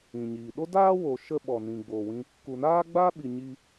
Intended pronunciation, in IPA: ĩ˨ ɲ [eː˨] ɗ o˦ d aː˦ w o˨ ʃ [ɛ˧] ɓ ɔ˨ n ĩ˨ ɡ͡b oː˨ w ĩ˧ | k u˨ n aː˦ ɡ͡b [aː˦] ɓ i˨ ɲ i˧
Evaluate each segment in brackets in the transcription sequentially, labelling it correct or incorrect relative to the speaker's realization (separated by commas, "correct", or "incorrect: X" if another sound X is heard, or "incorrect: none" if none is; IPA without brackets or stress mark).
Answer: incorrect: iː˨, incorrect: ə˧, correct